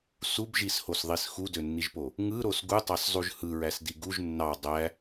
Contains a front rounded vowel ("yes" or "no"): yes